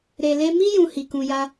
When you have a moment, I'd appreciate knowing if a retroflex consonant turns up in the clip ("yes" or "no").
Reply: no